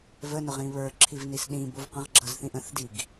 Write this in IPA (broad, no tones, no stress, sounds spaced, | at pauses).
v ə n ʊ ʁ ĩ β ə˞ ǁʰ i v n i s ɗ ĩ b ʊ v q ə̃ ʁ ɡ͡ǁ ʌ z θ ĩ ʔ ə̃ θ d i ɡ